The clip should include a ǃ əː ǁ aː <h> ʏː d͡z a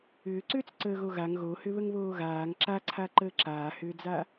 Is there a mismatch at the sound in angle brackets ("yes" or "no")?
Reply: no